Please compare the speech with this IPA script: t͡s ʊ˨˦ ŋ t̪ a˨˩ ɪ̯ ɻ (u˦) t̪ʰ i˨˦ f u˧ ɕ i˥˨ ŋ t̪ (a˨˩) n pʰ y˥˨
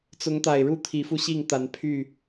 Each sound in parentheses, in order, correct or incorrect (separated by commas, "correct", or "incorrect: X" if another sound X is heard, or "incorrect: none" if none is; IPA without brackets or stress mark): incorrect: u˥˨, incorrect: a˨˦